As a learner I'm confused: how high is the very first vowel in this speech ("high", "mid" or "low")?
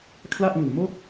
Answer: low